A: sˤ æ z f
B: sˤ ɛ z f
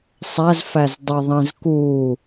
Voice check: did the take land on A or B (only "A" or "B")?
A